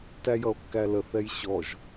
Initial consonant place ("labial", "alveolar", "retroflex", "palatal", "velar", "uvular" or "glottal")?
alveolar